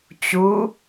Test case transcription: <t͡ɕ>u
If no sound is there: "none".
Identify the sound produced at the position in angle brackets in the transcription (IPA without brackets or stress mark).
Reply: t͡ɕ